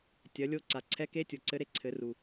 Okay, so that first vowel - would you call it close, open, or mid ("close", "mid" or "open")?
open